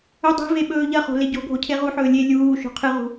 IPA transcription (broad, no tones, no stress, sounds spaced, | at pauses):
ɵ dˤ e̤ v e ɓ ɵː ʎ ɐ χ o̤ l e ɟ o̤ ɡʱ o cʰ e ʁ u ħ ɵː lʲ e lʲ uː ʃ o̤ qʰ ɨ ʁ ṳ